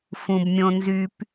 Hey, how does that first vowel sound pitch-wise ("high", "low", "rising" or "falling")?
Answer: low